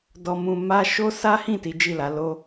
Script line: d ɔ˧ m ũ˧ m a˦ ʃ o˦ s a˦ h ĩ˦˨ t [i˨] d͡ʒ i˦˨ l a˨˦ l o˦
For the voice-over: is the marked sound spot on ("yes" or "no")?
no